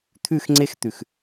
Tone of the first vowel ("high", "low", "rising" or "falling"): falling